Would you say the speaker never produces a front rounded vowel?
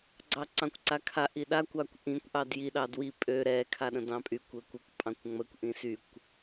no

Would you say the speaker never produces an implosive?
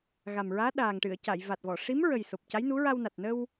no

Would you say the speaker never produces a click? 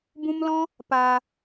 yes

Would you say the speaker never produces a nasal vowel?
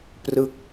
yes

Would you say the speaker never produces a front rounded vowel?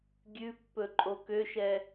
no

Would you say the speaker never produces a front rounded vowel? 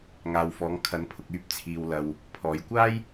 no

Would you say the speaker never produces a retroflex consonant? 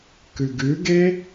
yes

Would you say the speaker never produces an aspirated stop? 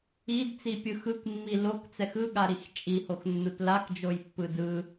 yes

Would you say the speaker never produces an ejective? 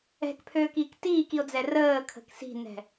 yes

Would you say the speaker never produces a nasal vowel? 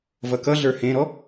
no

